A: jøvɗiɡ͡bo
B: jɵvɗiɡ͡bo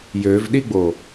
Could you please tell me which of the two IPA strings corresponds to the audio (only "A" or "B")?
A